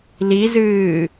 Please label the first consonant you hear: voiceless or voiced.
voiced